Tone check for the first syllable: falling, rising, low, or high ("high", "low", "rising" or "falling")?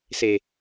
low